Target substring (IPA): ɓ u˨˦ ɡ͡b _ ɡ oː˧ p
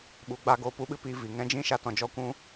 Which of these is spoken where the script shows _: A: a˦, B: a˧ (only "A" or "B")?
B